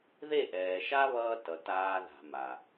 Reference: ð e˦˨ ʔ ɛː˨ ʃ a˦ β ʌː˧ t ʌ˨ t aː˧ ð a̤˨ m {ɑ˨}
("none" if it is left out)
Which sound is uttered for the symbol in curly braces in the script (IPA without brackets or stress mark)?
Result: a˨